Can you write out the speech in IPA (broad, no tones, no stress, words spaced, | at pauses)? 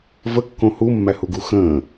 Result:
vəkːõ humːæhuɡu xə̃ː